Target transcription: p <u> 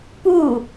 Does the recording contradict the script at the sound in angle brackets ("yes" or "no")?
no